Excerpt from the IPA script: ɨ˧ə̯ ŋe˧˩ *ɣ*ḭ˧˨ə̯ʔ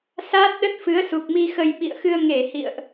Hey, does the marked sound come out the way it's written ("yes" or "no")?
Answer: no